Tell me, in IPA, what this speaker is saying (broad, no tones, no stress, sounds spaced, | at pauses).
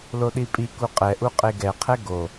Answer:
l o ɗ i pʼ i k u qʼ ɛ ʔ u qʼ e ɡ ɛ qʰ ɛ ɡ o